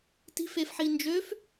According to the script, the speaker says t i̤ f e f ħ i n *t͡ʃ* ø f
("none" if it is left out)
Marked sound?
d͡ʒ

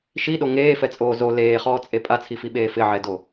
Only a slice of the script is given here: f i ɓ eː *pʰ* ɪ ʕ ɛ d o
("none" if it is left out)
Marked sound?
f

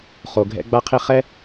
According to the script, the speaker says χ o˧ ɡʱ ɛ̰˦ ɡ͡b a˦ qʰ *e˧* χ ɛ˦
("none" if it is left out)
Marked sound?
e˦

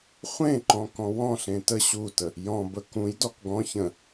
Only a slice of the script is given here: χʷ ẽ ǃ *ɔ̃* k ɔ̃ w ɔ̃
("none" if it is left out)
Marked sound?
ɔ̃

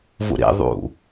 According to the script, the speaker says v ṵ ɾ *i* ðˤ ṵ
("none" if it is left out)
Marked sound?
ḭ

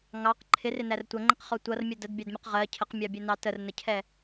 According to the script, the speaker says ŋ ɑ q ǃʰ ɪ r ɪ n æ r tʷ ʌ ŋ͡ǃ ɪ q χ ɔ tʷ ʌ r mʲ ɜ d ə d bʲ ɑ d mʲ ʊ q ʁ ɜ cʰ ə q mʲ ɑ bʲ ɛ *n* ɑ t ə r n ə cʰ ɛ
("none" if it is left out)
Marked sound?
n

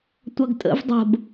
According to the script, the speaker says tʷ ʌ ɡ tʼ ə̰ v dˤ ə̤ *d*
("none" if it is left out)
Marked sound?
b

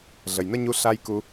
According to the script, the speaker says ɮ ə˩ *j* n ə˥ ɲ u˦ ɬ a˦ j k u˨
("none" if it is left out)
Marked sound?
j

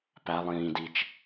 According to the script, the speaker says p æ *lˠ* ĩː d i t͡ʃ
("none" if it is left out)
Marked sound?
lˠ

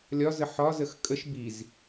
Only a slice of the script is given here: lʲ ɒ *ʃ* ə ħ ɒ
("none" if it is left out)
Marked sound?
z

